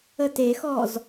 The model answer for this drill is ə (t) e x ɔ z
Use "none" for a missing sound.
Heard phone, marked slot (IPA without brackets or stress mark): t